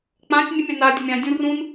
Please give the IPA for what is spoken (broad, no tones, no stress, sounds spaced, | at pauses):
k͡p ã tʲ nʲ ə mʲ a n a dʲ ə mʲ ã dʲ ũ r ũ n